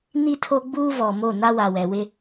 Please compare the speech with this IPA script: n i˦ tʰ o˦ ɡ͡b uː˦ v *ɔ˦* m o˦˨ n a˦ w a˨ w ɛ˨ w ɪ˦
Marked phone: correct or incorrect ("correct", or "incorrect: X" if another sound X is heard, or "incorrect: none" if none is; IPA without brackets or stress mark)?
incorrect: ɔ˨